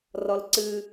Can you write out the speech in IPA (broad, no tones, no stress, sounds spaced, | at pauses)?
r ɔ l ǀ ɨ